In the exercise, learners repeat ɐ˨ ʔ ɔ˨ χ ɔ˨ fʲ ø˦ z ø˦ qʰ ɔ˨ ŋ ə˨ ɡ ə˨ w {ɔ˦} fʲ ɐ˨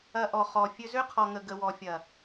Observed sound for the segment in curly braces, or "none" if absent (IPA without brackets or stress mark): ɔ˨